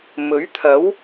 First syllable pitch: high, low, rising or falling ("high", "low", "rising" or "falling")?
rising